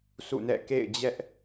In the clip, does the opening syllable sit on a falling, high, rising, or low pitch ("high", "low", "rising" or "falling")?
falling